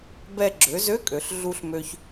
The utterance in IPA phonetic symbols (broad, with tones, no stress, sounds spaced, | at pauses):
b ɛ˧ ɡ͡ǁ ø˩˧ z ø˧˥ kʼ ø˩ ɬ ɮ u˧ ɬ m ø˧ ç